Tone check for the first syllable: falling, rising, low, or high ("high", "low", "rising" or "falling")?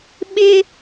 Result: high